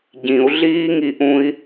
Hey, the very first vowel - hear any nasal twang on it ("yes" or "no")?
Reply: yes